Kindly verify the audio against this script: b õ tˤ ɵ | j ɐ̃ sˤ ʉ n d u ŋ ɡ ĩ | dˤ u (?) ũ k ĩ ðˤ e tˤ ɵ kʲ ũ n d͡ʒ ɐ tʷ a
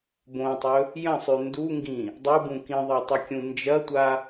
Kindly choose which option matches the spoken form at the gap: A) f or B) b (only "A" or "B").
B